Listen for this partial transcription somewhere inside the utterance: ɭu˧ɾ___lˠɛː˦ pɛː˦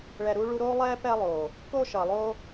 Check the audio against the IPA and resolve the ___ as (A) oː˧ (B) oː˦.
B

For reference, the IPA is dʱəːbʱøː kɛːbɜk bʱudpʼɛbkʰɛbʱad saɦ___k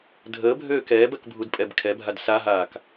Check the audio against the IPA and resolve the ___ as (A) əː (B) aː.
B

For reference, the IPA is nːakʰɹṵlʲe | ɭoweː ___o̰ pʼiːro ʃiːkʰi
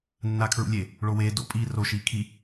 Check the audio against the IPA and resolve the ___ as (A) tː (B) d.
B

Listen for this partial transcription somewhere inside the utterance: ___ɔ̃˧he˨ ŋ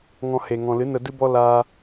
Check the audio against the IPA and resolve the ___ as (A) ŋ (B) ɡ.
A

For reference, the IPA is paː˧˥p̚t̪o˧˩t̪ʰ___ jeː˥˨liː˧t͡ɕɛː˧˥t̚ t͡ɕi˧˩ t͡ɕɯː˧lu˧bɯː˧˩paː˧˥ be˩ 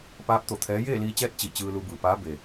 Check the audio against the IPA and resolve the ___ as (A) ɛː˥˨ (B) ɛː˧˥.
B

